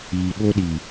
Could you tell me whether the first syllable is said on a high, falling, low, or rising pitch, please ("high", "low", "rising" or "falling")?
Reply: low